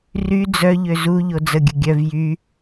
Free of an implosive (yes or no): yes